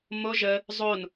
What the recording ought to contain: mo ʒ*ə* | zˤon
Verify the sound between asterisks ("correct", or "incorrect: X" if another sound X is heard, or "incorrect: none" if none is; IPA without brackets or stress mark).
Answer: correct